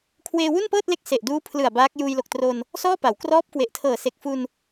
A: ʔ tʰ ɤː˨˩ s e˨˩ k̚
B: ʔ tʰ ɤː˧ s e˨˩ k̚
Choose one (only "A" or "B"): A